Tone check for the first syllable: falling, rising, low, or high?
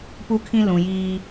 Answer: high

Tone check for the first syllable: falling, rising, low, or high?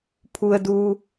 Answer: low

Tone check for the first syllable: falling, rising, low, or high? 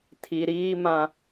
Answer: low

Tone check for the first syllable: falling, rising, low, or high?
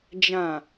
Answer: low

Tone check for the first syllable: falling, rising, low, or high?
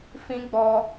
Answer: high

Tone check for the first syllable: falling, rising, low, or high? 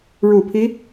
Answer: low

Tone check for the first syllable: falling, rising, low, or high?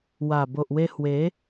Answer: low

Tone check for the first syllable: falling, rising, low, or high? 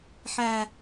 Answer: low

